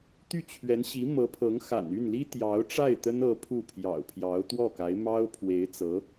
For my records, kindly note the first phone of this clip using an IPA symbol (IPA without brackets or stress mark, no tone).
t̪